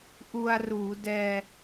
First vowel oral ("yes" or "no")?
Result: yes